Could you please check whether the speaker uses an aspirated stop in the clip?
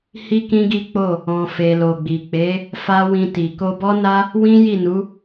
no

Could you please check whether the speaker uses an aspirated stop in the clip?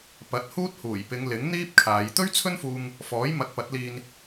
yes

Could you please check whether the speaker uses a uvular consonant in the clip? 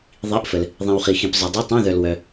yes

